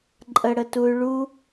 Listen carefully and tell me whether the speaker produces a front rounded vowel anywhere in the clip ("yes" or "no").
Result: yes